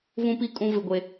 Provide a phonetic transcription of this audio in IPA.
vũ˦pi˦ kʼũ˦ vɪ˦ɡʷe˦

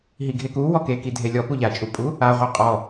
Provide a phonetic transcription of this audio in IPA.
ɦiɡʱeku wɔkekidʱe lʲɔ puʎat͡ʃʼupʼu | aʁʷe qʼɔ

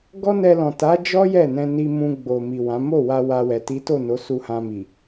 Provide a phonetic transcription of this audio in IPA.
ɡɔ˦nɛ˧lɔ̃˨ ta˨˦d͡ʒɔ˦ jɛ˦˨nɛ̃˧ni˧mũ˧ ɡ͡bo˨mi˨wã˨˦ mo˦˨wa˧ wa˧wɛ˨ ti˨˦to˦˨no˨˦ su˧hã˧mi˨

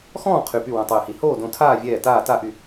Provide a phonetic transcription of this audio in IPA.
xɔ̃ː˥˨ qʰy˧˩py˥˨ wõ˧˩tˤyː˧˩hi˧˩ hoː˥˨dõ˧˩tʰaː˥˨vʲɛː˧˩ taː˥˨ta˥˨ʔy˧˩

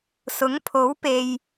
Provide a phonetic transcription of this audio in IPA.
sʊ˨˥ŋpʰo˨˥wpe˨j

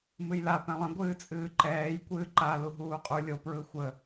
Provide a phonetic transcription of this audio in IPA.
mɨjla pɛ̃lˠə̃ ɡʷɨːt͡sʼɨːǃɛːj kʷɨːǃa luɦuːqʼu lʲo pɹɯxʷə

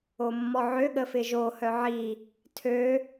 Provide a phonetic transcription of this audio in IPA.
omːɔʕø ɠəfɪʒo hœʕi | tʰø

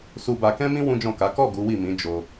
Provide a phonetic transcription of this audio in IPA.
su˧ba˧ kɛ̃˦mĩ˦ wũ˦d͡ʒɔ̃˦˨ka˨˦ kɔ˦˨ ɡu˨˦wi˦˨mĩ˨˦ d͡ʒo˧

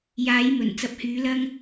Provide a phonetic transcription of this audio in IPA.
jaː˨˥jmɵ˨˩n t͡sɐ˨p̚hyː˨˥ lɐ˥ŋ

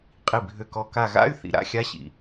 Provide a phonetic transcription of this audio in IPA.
qʼi˧˩ bʱø˧˩kɔ˧˩ ka˧˩ɣa̰˧˥˧y̯ θḭ˧˩ɾa̰˧˥˧xʲa˧˥˧ɕḭ˧˩

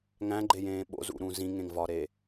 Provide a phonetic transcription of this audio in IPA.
ŋæ̃ɡ͡ǃejẽː ɓo̰zṵɾũ zĩŋẽŋvɒɾe

